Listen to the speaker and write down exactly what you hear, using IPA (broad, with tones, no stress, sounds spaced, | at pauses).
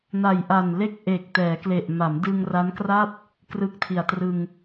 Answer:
n a˨˩ j ʔ a˨˩ n l e˥˩ k̚ ʔ eː˨˩ k̚ t ɛː˩˦ k l e˨˩ ʔ m a˩˦ m d ɯ˧ ŋ r a˦˥ n k r a˥˩ p̚ | k r ɯ˦˥ k̚ tʰ i˨˩ a̯ t r ɯ˧ ŋ